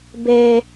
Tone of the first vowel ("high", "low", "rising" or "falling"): low